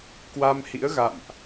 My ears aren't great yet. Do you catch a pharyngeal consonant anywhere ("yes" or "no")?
no